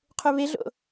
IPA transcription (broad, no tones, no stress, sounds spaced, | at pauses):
qʰ u β e ɮ o̰